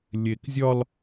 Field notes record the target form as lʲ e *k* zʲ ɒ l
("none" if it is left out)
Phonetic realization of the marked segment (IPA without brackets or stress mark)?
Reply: k